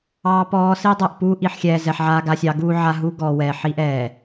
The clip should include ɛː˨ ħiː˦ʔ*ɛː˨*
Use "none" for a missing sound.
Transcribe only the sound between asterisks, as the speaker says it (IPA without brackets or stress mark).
ɛː˨